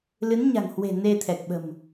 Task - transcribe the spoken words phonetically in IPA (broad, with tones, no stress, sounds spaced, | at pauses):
l ɨ˨˦ n ɲ a̤˨˩ ŋ h w e̤˨˩ n e˧ t̪ʰ ɛ˨˩ k̚ ɓ ə̤˨˩ m